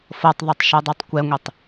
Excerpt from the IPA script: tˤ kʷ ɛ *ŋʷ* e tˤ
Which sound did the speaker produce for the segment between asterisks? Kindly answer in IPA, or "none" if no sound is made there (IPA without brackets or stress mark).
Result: ŋʷ